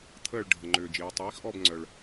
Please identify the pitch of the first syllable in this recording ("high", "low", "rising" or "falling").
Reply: falling